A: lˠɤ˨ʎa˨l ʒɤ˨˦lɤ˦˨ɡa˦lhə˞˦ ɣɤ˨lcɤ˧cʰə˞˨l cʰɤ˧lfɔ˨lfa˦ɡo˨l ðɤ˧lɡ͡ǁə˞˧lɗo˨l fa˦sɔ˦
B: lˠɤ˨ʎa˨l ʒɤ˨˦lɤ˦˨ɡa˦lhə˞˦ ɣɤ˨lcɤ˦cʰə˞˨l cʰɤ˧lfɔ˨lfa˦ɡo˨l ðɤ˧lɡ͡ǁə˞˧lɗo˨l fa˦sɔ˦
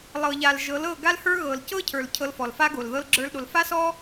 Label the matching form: B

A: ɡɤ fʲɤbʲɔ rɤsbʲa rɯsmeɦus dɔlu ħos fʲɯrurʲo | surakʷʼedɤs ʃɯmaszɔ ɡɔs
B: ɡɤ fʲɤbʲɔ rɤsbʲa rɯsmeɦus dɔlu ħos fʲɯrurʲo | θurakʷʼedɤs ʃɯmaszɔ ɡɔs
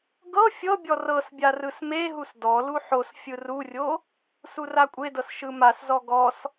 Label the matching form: A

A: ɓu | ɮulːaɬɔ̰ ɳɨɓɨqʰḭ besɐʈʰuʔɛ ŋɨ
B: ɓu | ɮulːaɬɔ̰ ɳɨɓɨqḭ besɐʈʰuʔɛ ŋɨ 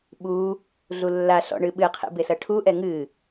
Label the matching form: A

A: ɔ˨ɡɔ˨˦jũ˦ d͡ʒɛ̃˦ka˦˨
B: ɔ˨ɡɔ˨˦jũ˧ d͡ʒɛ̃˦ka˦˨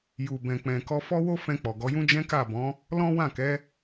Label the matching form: A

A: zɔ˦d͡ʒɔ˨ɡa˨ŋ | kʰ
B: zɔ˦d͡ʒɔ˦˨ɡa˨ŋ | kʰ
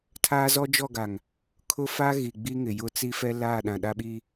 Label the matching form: B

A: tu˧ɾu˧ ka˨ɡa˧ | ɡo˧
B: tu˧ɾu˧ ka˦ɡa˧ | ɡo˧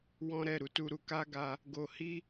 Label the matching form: B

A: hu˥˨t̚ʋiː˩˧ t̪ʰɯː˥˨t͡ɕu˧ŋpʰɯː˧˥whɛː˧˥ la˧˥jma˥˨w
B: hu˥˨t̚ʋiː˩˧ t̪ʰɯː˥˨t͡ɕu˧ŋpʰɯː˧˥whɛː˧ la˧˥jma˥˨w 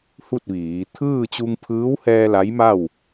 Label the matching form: B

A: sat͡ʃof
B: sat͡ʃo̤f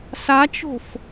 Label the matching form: B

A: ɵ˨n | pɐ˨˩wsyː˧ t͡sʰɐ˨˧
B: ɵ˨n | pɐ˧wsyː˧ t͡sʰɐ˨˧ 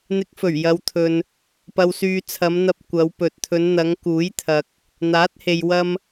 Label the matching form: B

